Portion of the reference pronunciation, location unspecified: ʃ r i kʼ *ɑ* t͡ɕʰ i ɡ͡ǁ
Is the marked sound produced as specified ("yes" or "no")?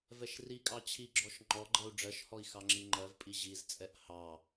yes